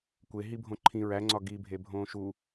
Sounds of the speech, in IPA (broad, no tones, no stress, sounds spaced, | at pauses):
kʷ e ɦ i bʱ õ ǃʰ ĩ ɹ æ ŋ͡ǀ ɒ ɡ i bʱ e bʱ õː ʃ u